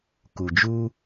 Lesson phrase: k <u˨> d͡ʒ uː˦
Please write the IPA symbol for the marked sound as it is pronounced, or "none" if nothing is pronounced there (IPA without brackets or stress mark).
u˨